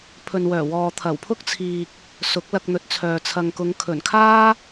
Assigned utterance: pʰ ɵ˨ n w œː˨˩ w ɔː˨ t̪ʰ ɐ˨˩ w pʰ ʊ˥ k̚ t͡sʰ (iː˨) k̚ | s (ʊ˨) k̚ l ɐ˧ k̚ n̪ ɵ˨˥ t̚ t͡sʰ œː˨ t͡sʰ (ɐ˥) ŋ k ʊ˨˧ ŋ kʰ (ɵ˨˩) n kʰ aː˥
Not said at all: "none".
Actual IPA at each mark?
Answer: iː˨, ʊ˨˥, ɐ˨, ɵ˨˩

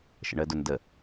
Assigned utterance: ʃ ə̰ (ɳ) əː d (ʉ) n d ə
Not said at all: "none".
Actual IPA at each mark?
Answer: ɳ, ʊ

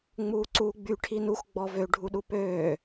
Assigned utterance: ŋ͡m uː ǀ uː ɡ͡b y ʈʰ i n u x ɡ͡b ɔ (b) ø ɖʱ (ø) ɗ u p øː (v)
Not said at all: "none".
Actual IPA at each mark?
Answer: v, u, none

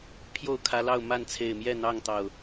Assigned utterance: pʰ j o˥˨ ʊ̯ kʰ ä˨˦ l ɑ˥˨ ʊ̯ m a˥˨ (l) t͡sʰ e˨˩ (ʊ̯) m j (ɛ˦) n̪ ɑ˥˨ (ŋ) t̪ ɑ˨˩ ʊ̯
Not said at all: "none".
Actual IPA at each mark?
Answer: n, ɪ̯, ɛ˥˨, ŋ

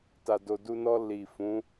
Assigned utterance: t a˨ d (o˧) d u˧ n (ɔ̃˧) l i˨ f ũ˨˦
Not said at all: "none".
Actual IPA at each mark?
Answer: o˨, ɔ˧

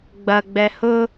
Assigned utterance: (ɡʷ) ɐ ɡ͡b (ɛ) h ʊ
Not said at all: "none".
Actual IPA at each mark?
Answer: ɡ͡b, ɛ

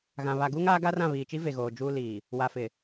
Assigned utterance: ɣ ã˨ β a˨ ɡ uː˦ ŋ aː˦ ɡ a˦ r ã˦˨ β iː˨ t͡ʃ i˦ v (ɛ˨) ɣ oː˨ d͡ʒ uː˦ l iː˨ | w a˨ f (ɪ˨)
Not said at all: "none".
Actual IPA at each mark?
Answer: e˨, ɪ˨

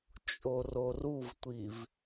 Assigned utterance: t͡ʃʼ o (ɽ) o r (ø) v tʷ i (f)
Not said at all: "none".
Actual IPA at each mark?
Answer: r, u, v

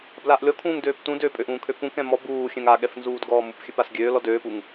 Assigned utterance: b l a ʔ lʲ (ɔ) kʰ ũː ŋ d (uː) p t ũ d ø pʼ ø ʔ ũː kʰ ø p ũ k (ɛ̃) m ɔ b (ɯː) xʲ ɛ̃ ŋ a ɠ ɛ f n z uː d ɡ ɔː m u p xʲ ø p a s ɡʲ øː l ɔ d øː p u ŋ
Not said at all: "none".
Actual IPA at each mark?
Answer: ɔ, øː, ɛ̃, uː

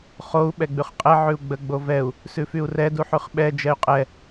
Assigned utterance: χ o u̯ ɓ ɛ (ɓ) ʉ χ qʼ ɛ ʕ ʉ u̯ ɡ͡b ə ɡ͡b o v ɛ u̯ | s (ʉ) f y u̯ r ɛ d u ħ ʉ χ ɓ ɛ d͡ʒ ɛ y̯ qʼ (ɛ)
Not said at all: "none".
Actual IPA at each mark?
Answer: ɡ͡b, ʉ, ɛ

